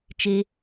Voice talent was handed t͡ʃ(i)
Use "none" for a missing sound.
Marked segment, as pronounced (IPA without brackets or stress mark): e